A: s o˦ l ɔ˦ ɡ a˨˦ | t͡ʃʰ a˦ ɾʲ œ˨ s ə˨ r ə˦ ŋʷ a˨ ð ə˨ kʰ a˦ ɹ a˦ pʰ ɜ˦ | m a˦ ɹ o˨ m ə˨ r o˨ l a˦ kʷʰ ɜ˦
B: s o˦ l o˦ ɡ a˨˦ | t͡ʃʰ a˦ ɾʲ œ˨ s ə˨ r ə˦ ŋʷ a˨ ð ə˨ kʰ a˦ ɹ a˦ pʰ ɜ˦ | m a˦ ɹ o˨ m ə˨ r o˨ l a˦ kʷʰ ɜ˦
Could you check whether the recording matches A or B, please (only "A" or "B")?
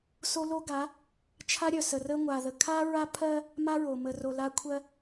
B